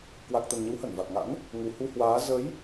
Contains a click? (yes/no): no